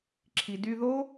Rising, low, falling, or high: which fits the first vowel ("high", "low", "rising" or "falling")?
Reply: low